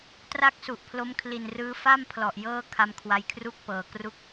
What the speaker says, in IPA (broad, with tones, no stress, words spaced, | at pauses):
tra˥˩k̚su˨˩ʔpʰlo˦˥m kʰli˨˩nrɯː˧ fa˥˩mpʰlɔ˨˩ʔ jɤː˥˩ kʰa˧mkʰwa˧jkʰru˥˩k̚pɤː˨˩ kru˥˩k̚